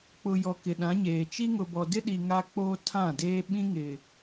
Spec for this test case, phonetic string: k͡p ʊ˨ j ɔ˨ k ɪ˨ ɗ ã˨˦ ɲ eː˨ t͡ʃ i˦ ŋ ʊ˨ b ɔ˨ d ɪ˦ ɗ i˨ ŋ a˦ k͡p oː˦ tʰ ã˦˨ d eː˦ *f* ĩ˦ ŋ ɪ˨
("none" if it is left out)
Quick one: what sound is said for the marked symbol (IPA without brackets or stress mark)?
ɓ